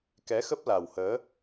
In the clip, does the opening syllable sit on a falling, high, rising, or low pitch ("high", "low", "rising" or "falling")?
rising